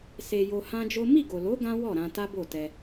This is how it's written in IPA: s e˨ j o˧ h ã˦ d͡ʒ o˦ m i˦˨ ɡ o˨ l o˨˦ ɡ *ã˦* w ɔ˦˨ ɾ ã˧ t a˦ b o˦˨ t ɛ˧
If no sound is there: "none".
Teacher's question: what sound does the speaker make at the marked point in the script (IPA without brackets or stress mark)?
ã˦